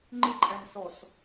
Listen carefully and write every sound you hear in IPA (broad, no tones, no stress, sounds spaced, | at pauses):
ŋ͡ǃ ɪ ǃʼ æ n s ɔ s